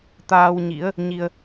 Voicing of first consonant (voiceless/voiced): voiceless